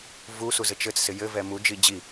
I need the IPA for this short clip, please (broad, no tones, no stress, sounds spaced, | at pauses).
v u s u z ɘ t͡ʃ ɘ t͡s s ɪ j ɘ v ɛ m u d͡ʒ i d͡ʑ i